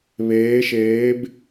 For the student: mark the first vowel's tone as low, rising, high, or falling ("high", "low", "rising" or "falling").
rising